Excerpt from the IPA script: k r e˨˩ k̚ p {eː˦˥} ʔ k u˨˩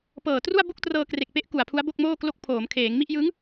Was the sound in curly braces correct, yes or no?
no